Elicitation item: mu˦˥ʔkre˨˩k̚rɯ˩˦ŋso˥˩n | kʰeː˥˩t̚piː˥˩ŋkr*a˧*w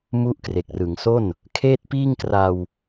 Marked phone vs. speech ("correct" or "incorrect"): correct